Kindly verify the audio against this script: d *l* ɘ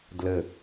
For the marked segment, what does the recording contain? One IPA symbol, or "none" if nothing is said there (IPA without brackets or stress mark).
l